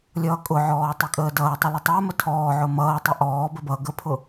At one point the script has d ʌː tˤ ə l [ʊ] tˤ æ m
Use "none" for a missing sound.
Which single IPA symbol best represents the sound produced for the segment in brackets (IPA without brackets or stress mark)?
ə